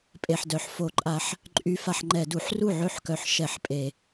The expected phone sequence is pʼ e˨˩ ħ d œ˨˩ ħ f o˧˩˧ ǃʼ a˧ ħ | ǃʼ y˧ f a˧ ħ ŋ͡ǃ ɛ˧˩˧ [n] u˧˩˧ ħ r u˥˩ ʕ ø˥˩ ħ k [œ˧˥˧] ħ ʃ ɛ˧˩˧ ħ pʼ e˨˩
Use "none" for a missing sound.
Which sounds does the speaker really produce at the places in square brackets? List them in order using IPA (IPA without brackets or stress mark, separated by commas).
d, œ˨˩